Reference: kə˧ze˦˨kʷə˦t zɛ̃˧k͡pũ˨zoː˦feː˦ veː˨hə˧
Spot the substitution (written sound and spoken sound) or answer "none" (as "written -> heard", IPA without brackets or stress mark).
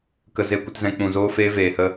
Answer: none